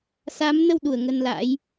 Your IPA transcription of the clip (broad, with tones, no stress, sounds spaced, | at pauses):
s a˨˦ m n ə˧ w ɗ u˧˩ ə̯ ŋ ə˧ n l a̰˧˥ j